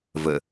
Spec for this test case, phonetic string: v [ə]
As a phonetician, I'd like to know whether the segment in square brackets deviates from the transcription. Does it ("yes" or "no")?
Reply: no